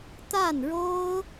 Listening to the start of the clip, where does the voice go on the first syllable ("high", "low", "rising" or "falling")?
falling